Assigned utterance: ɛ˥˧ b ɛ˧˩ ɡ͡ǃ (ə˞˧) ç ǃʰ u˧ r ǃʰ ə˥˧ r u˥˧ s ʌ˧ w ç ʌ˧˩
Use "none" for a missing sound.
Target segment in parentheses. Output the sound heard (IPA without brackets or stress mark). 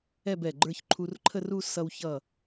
ə˞˧